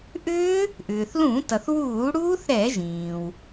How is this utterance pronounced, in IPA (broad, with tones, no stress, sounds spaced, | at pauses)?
ʔ ʏː˦˥ | ʔ ʏː˩ θ l ũ˧˩˧ t ʌ˩ θ w uː˧˩˧ ɽ uː˦˥ θ ɾ ɛ˧˩˧ ʒ ĩː˩ w